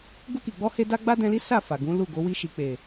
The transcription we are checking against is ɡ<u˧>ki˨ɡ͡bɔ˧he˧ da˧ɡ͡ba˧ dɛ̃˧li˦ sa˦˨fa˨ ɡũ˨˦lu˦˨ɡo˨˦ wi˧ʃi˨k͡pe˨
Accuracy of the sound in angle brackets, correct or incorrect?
correct